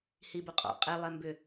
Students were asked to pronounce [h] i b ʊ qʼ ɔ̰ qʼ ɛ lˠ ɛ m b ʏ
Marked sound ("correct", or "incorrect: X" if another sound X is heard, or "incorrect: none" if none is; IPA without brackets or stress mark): correct